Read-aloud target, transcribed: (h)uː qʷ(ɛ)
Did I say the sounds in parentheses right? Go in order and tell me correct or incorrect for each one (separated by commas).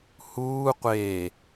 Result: correct, incorrect